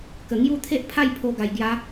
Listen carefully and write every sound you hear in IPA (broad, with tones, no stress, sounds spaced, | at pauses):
k ə˨˩ ŋ j u˦ t̪ʰ e˦ ʔ pʰ a˥˧ j pʰ o˧ ɡ a˨˩ j ɡ j a˨˦